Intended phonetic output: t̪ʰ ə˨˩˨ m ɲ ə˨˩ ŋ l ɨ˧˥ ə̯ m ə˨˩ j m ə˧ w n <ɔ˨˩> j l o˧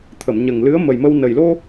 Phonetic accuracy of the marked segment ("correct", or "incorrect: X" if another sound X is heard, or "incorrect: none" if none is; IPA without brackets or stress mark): incorrect: ə˨˩